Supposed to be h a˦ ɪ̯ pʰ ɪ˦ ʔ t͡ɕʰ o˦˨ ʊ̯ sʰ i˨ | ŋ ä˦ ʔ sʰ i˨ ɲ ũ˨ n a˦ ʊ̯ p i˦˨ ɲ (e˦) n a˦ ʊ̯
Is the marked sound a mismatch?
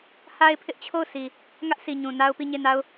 yes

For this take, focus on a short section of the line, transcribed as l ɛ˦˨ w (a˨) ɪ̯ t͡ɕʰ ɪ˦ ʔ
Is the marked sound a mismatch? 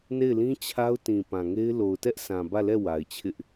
no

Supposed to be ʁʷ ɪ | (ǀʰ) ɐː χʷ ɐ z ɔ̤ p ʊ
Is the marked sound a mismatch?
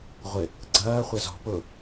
yes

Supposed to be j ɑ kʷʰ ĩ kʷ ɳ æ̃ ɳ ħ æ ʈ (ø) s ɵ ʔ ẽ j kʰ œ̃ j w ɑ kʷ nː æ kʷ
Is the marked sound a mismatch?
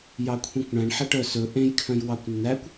yes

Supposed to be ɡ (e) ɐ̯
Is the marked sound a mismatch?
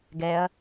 yes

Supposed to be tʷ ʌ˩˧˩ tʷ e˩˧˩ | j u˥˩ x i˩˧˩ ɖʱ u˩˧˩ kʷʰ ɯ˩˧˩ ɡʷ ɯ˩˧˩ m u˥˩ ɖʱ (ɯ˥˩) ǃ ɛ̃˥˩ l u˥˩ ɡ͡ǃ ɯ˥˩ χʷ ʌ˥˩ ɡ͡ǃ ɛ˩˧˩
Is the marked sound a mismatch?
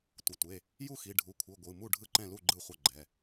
no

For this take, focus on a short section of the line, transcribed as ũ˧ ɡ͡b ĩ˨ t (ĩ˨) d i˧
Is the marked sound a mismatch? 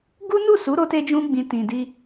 no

